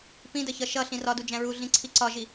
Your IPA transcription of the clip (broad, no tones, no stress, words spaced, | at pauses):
pĩdəçʌ ʃʌ ɬĩrɒdu d͡ʒæ̃ɹu ɮĩǀʰiǀɒʒi